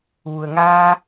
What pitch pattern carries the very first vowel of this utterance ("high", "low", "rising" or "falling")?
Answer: low